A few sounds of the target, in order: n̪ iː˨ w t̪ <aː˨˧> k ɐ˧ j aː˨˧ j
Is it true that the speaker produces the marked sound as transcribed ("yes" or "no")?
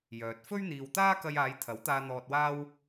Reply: no